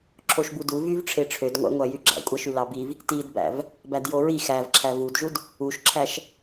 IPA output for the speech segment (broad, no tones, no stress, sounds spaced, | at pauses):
ǁʰ o ʃ b u d u v y v ʈ͡ʂʰ e ʈ͡ʂʰ ø d ŋʷ æ̰ ŋʷ æ j y ɡ͡ǁ æ̰ kʷʼ æ ʃ y l ɑ b i v | t i d b æ̰ v | b æ d j o ɹ i x æ v ǁʰ æ v u d ʒ u d | u ʃ ǁʰ æ ʃ